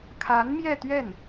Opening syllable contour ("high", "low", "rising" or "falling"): rising